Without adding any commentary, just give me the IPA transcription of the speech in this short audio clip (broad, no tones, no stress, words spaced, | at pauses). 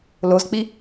lozk͡pi